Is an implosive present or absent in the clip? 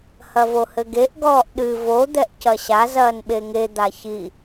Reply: present